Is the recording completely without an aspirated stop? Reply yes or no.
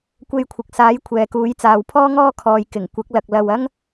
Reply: no